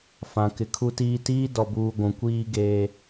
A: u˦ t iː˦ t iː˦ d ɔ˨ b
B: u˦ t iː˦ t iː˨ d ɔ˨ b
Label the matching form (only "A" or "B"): A